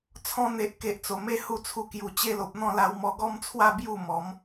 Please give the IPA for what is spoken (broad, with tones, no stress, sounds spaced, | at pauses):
t͡sʰ ɔ̃˧ n̪ e˨ ʔ k e˨ ʔ t͡s o˨˩ m e˦ h u˥˧ t͡sʰ u˧ k j u˨˩ t͡ɕ e˦ l o˨ p̚ n̪ ɔ̃˥˧ l a˧ w m ɔ˧ ɡ ɔ˦ m t͡sʰ w a˥˧ b j u˥˧ m ɔ˨˦ m